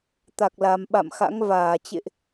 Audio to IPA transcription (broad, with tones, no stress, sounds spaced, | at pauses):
t̪ a˨˩ k̚ l a˨˩ m ɓ a̰˧˨ m x a̰˧˥ ŋ v aː˧˩ t͡ɕ ḛ˧˨ ʔ